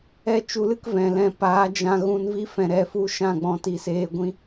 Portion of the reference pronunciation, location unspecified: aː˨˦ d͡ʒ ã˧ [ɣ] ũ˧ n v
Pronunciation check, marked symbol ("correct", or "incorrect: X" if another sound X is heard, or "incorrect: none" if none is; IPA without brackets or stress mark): correct